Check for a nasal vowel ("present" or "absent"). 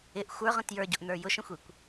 present